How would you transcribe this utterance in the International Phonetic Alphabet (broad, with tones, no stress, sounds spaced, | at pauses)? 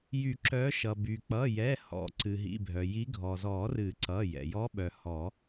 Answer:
j y˨˩˦ ǁ œ˨˦ ʃ ʌ˩ b y˩ k͡p ʌ˩˧˩ j ɛ˩˧˩ h ɔ̰˨˩˦ ǀ ɨ˩ ɦ ḭ˩˧˩ bʱ œ˩ j i˨˦ ɡʱ ɔ˩ z ɔ˨˩˦ r ɨ˨˩˦ ǀ ʌ˩˧˩ j ɛ̰˩ j ɔ˨˦ ɓ œ˩ h ɔ˨˩˦